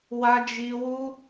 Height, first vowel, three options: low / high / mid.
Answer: low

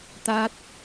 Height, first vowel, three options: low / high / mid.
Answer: low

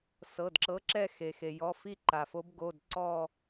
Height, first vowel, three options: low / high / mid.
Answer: mid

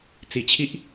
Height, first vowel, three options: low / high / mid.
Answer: high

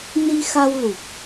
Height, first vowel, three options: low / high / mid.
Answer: high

